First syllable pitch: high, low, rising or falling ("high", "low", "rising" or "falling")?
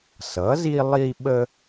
rising